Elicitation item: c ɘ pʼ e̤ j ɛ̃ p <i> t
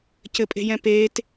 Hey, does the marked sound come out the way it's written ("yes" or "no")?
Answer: no